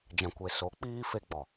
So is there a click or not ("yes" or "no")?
no